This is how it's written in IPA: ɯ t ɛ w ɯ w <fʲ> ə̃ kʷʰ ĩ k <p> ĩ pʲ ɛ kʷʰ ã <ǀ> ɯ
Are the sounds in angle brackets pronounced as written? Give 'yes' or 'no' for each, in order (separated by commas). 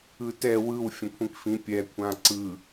yes, no, yes